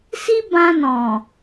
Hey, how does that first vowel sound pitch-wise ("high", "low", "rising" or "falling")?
high